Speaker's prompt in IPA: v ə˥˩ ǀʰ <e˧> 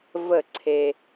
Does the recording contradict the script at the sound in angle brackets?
no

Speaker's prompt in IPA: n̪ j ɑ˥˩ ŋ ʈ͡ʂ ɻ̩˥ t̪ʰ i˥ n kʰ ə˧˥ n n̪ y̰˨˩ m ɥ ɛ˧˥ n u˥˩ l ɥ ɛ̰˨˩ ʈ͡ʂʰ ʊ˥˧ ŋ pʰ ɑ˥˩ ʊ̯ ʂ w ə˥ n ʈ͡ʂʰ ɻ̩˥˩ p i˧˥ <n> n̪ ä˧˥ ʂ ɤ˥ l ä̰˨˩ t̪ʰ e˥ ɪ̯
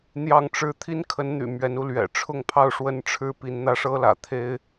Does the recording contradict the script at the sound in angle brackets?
no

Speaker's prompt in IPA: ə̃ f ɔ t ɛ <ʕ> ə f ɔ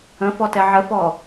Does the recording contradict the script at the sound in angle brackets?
no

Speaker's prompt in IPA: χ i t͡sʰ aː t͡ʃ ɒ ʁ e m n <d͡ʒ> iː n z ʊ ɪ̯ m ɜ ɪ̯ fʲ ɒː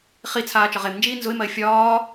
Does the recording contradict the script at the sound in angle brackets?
no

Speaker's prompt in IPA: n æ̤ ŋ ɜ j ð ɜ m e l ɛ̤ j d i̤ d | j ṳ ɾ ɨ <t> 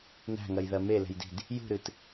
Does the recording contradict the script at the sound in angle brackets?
no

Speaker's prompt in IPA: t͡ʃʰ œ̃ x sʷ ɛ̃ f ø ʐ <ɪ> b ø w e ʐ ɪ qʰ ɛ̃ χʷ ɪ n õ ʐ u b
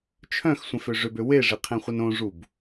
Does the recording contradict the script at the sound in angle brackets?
yes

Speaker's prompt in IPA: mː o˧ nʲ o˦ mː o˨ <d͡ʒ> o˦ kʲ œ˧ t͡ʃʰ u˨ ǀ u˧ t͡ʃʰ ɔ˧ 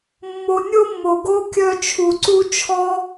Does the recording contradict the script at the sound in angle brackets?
yes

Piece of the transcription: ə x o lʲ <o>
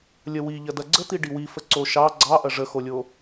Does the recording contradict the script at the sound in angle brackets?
no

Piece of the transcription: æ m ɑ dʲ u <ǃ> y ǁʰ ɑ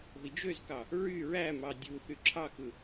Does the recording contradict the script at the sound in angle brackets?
yes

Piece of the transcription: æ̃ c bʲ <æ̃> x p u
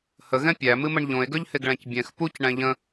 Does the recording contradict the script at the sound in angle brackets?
yes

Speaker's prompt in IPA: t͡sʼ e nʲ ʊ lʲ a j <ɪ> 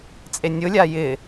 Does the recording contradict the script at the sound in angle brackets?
no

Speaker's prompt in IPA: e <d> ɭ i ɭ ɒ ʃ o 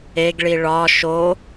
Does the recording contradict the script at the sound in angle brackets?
yes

